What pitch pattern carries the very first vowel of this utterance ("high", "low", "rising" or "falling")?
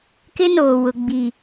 high